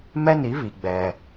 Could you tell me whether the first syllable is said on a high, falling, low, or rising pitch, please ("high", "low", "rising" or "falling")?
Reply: high